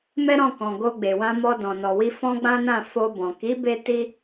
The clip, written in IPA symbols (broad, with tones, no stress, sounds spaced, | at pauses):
m ɛ˦ ɾ ɔ̃˦˨ k ɔ̃˨ ɡ o˧ ɡ͡b e˨ w ã˧ m ɔ˧ d ɔ̃˨ n ɔ˨ w i˧ f ɔ̃˦ ɡ͡b ã˦ n ã˦˨ f o˧ b ɔ̃˨ k i˨˦ b e˦ t i˦